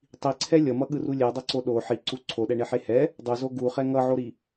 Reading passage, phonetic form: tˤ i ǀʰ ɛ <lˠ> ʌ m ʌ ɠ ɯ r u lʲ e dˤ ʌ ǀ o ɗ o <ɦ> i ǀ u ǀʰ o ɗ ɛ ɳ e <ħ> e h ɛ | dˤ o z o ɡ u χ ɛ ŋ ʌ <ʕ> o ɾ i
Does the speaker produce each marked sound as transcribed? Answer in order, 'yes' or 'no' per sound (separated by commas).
no, no, yes, yes